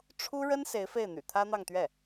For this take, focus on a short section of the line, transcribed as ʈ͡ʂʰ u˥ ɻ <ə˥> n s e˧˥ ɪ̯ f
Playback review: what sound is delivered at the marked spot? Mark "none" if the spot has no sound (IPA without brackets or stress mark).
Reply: ə˥